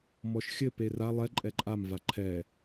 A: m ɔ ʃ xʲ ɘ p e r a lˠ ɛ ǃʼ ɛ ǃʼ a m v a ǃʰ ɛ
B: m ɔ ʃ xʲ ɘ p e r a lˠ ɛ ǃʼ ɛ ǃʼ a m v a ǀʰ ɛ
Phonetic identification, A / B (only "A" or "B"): A